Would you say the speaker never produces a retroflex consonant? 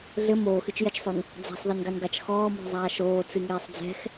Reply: yes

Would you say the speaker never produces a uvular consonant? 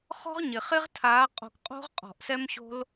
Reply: no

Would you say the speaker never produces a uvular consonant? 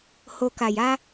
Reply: yes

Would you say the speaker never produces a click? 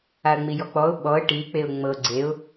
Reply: no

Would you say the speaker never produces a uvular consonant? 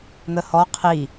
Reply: no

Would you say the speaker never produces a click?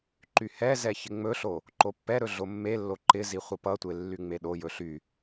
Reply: no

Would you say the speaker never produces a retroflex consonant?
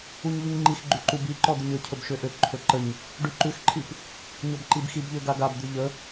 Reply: no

